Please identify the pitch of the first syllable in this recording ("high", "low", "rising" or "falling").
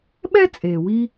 high